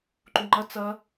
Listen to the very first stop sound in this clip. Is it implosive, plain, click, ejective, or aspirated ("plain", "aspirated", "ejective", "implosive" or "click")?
click